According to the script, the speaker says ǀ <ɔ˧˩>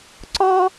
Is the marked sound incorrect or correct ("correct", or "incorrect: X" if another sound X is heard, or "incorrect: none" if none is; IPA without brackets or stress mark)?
incorrect: ɔ˥